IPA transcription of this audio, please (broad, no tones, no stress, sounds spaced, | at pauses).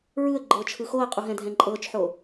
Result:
ɹ ɯ ə̯ ɡ͡ǃ ɤː t͡ʃʰ ɯ x o ə̯ qʼ u ɦ ɛ̃ dʱ ɛ̃ ǃʼ ɤː t͡ʃ ħ o